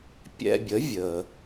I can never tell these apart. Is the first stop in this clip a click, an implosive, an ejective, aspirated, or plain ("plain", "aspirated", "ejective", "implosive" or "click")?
plain